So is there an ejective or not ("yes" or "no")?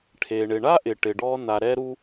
no